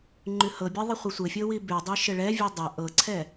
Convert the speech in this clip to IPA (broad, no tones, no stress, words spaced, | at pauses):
ŋ͡ǃʉhɤbʲɛ ðˤəχʷisʷɘfʲɤ wibʉdˤi ʃɘɭɛvʲʉ dˤɘ ʔɤǀʰɛ